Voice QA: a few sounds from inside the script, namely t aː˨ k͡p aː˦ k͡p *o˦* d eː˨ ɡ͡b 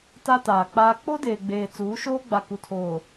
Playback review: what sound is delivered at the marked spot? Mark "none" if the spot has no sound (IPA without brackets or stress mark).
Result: o˦